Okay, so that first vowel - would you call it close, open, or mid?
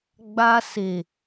open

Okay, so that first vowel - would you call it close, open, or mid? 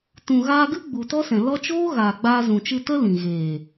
close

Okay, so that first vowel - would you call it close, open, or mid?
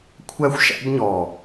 open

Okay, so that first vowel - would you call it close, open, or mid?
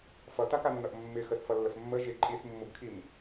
mid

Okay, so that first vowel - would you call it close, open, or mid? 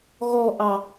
mid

